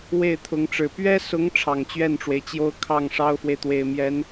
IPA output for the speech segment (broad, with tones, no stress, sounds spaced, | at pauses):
w e˥˩ ɪ̯ t̪ʰ ʊ˧˥ ŋ ʈ͡ʂ ɻ̩˨˩ p ɥ ɛ˥ s ʊ˧˥ ŋ ʈ͡ʂʰ ɑ˨˩ ŋ t͡ɕ ɥ ɛ˥˩ n ʈ͡ʂ w e˩ ɪ̯ t͡ɕ j o˥ ʊ̯ kʰ ɑ˥˩ ŋ ʂ ɑ˥ ʊ̯ f w e˨ ɪ̯ t̪ w e˨˩ ɪ̯ m j ɛ˧˥ n